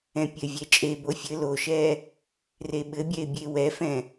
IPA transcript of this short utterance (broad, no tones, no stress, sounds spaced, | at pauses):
ɛ̃ pʲ ɘ vʲ ɛ t͡ʃʼ e b o fʲ ɘ l o ʃ ɛ | r e ɓ ɘ bʲ ɛ ɪ̯ bʲ e w ɛ f ɛ̃